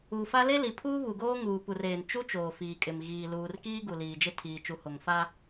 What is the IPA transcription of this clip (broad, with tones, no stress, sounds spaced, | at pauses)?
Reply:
u˨ f a˦ l e˦ l i˨ pʰ uː˦ β u˨ ɡ oː˦ ŋ uː˨ p u˨ r eː˨ n t͡ʃ u˦ t͡ʃ oː˨ f iː˨ kʼ ɪ˨ m ɣ iː˨ l uː˨ r k iː˦ ɡ u˨ l iː˨ d͡ʒ ɪ˦ tʰ iː˨ t͡ʃ u˨ h o˨ ŋ f a˦